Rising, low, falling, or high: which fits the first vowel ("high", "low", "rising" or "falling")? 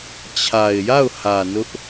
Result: low